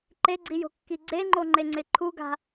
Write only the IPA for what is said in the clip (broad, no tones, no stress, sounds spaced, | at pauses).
ǃ e ɡ͡ǀ i j o̤ kː i ɡ͡ǀ e ŋ͡ǃ o ŋ͡ǃ e ŋ͡ǀ ɪ ǃʰ u ɡ a̤